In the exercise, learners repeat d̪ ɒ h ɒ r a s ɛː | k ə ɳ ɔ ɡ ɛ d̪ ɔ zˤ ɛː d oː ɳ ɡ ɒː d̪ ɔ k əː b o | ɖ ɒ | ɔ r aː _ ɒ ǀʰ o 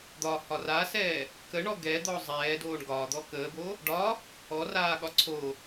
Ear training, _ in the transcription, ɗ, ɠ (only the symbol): ɠ